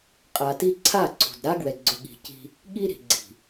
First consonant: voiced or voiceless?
voiceless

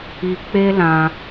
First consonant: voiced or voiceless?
voiceless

